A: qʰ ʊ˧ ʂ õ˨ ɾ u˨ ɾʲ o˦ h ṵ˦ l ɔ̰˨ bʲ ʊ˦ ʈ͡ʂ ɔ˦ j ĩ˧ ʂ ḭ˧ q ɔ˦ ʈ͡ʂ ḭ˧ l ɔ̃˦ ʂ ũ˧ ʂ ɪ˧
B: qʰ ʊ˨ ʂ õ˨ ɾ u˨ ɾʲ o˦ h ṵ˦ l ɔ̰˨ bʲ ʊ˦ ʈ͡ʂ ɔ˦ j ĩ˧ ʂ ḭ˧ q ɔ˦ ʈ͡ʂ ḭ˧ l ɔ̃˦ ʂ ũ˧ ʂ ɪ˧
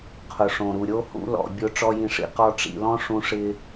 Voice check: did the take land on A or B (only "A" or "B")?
B